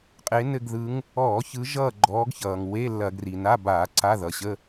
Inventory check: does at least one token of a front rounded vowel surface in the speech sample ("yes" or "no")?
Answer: no